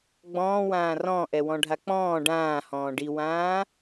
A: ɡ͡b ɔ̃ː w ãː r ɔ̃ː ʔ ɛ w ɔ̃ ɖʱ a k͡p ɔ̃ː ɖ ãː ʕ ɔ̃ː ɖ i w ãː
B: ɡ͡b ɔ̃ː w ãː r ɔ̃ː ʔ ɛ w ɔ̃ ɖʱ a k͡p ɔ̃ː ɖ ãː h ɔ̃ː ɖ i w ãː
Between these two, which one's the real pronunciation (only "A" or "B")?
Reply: B